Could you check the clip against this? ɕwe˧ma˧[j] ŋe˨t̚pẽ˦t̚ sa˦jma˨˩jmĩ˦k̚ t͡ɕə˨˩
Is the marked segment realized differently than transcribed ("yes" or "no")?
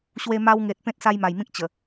yes